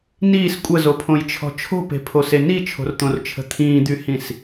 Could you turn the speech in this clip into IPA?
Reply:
niːs kʷʼəzopʰõjt͡ʃʰɔ̤ t͡ʃʰo̤pe̤pʰose nit͡ʃʰo̤rt̪õrt͡ʃʰə̤ t̪ʰĩːd̪yhĩs

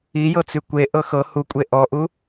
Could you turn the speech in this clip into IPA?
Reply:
ijɤt͡sy kʷe ʔɤxɤ hukʷʼe ʔɔʔu

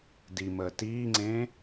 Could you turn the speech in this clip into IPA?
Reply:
diməː tiːŋ͡ǀẽː

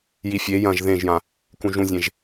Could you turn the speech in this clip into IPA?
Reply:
jifʲe jɐ̃ʒ ðẽʒjã | kũʒũzʲẽʒ

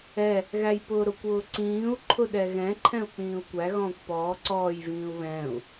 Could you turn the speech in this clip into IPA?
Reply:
ɛ | ɣæjpʊːɾʊkʷ ʊːǀĩːu̯ ǃʰʊɗɛɣɛ̃ ǃʰɛ̃u̯k͡pĩːu̯kʷæ ɣɔ̃ːkʷpɔː ǀɔːj vĩːu̯βɛ̃ːu̯

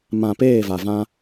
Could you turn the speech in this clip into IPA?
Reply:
mã˨ peː˦˨va˨vã˦

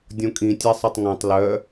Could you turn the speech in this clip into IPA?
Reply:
dʲõkʼĩ tʲɛsˤɛtˤŋõtˤ lœ

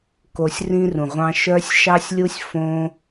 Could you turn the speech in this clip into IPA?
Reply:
ko˧sʲrĩ˦rũ˨ʁʷɑ̃˦ ʃœ˦sʲʃɑ˦sʲlʲu˦sʲ fõ˦

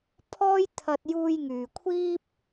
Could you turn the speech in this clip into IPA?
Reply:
pʰɔː˥jt̪ʰɐ˧t̚juː˧j ŋyː˨kʷʰiː˥p̚

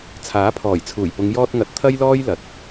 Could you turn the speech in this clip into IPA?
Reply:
t͡sʰaː˨˥pʰɔː˨˩jt͡sʰuː˨˩jpʊ˨˧ŋ jɔː˧t̚ŋɐ˨t̚ t̪ʰɐ˥jlɔː˥jlɐ˨˥t̚

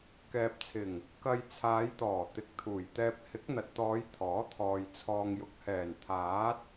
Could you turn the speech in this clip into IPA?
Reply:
kɛː˨p̚t͡sʰɪ˨˩ŋ | kɐ˧j t͡sʰaː˨˧jt̪ɔː˨˩ t̪ɪ˨˥k̚t̪ʰuː˨˩jt̪ɛː˧p̚ hɪ˨˥k̚n̪ɐ˨t̚t̪ɔː˨˧j t̪ʰɔː˨˥t̪ʰɔː˨j t͡sʰɔː˨ŋjʊ˨k̚hɛː˨˩n t̪ʰaː˨˥t̚

